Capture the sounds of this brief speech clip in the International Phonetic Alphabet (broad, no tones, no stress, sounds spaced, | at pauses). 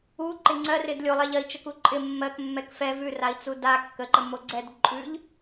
u ǃ ɪ ŋ͡ǀ ɜ r ɪ d lʲ o lˠ ɛ ʎ ɜ i̯ t͡ʃ ə k u ǃʼ ɪ mː ɜ k mː ɛ k f ɛ v ʉ r a i̯ t͡s u d a kː ə ǃ ə m o ɡ͡ǀ ɛ d ǃʼ ʉ ʎ